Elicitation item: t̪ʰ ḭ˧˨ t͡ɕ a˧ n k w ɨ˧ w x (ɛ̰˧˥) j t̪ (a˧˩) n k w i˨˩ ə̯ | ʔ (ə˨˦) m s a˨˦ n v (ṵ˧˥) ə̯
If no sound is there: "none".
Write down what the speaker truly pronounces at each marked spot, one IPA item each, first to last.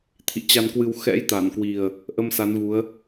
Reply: ɛ̰˧˥, a˧˩, ə˧, u˨˦

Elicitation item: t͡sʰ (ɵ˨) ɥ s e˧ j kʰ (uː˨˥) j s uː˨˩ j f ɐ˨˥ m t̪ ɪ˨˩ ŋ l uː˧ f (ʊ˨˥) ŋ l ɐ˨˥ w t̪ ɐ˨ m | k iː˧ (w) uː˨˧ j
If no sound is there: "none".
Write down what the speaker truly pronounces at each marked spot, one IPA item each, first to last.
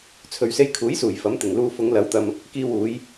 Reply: ɵ˨, uː˨˥, ʊ˨˧, w

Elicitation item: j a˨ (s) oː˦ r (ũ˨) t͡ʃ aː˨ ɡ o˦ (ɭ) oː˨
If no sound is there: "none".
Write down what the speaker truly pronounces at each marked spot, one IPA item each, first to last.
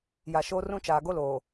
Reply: ʃ, ũ˦, l

